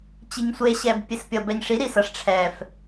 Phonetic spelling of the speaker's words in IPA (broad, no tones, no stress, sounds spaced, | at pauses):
t͡ɕ i ɲ sʷ e ɕ ɛ b pʲ e s pʲ ʌ b ɛ ɲ ʂ i ɾ i s ʌ ʂ ʈ͡ʂʰ ɛ f